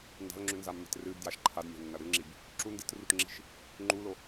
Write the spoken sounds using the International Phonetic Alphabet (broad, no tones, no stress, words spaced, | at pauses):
nda̤lŋ͡ǁʉnzamːe̤t rɨbdjaʃ ǃʰadmʲa̤nːɐ ɾɨŋ͡ǁib | ǁu ndɨtrutŋ͡ǁi̤ʃ | ŋ͡ǃulo